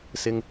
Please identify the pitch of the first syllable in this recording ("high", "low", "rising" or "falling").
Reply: high